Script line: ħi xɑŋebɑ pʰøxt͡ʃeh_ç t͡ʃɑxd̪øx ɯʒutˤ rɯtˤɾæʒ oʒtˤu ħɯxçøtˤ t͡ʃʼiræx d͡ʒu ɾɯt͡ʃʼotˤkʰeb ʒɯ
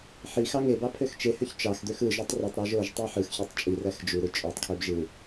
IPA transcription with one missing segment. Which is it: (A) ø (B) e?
A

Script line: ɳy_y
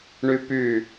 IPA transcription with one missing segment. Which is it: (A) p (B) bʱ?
A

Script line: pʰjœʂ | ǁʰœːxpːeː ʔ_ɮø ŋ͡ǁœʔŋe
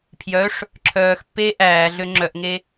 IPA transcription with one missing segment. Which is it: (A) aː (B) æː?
B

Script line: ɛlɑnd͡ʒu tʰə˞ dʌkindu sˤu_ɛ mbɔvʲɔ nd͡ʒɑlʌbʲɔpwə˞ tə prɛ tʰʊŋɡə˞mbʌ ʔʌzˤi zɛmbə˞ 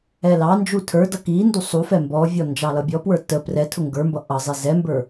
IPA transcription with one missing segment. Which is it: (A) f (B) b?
A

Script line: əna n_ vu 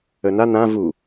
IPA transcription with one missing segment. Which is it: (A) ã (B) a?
A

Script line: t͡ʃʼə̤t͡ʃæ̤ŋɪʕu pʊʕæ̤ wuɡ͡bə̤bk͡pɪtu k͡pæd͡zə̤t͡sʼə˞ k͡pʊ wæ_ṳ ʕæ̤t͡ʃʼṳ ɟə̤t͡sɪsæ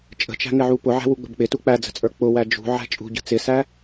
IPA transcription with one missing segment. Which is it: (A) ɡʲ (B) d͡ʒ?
B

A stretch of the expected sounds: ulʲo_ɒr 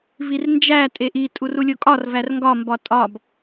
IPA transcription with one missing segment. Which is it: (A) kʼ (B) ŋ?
A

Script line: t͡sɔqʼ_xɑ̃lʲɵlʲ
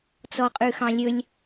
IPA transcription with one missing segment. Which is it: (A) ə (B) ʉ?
B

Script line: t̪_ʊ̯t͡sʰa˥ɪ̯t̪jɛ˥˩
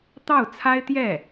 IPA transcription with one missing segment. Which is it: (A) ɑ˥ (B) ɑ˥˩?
B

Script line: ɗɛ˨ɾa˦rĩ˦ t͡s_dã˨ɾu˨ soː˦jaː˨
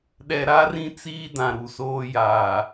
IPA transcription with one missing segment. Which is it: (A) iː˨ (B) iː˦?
B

